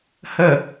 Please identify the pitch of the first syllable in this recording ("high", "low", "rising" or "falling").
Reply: low